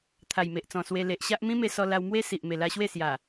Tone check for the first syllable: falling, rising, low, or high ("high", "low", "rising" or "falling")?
low